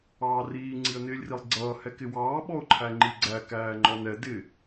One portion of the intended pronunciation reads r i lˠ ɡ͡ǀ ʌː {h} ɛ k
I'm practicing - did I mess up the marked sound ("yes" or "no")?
no